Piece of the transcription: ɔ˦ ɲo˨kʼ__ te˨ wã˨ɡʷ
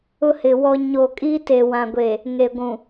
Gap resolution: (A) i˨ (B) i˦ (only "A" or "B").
B